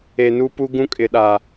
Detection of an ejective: present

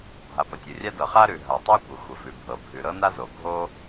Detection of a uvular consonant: present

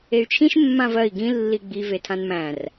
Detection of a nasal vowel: present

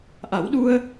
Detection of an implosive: present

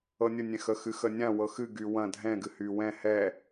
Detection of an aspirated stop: absent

